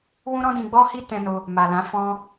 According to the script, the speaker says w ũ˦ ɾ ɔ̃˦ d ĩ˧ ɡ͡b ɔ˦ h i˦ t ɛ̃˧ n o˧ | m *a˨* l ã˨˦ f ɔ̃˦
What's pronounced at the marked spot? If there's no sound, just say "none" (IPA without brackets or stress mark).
a˨